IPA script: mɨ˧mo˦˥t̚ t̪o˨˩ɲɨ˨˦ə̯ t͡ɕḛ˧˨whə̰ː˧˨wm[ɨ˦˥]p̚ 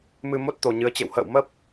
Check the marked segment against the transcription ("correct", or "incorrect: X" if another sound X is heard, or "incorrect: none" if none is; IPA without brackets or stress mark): incorrect: ə˦˥